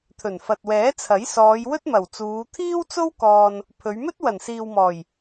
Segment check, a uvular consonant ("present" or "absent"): absent